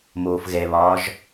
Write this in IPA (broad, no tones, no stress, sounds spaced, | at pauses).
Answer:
m oː f ɣ ɛ β ɒː ʒ